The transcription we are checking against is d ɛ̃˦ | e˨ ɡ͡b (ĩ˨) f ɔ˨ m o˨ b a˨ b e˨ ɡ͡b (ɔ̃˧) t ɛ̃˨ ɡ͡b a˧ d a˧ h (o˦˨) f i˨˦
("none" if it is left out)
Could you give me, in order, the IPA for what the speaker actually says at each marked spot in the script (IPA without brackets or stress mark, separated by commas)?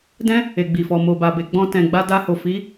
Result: i˨, ɔ̃˧, o˨